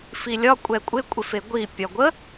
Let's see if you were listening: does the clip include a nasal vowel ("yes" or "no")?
no